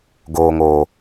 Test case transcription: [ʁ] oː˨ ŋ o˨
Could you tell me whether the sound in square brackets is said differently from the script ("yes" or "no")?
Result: yes